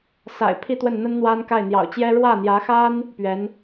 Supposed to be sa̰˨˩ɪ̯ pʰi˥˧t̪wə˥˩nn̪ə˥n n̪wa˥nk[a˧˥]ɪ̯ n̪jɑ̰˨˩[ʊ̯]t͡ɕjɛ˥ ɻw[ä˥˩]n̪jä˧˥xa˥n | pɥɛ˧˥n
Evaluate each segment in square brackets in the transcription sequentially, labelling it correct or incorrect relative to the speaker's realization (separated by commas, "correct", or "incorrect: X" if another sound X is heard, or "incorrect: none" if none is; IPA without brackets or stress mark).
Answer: incorrect: a˥˩, correct, correct